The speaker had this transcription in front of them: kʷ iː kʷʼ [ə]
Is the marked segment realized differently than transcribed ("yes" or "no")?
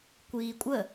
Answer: no